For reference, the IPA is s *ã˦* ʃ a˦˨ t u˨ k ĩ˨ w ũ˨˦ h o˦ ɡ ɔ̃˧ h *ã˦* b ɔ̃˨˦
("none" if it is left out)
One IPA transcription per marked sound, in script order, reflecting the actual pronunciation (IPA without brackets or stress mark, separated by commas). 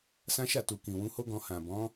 ã˦, ã˨